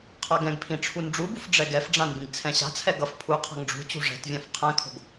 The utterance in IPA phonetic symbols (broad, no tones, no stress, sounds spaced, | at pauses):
qʰ a ɡ ɛ̃ ɡ pʰ ĩ ʈ͡ʂʰ u n ɖ͡ʐ u b u f ɖ͡ʐ ɛ ɡ ɛ f ɖ͡ʐ ã n b ĩ ɡ t͡sʰ ɛ̃ ɕ a̤ t͡sʰ ɛ ɡ ʌ f pʰ u qʰ a̤ ŋ ɖ͡ʐ ṳ t͡ɕ ṳ ʐ ɛ̤ t vʲ ã f qʰ ɛ̃ kʰ o̤ ɡ